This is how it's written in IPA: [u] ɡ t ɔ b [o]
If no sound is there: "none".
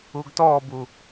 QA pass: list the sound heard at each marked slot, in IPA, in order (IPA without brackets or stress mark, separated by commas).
u, u